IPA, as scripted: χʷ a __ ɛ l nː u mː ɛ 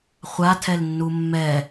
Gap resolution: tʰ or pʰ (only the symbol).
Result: tʰ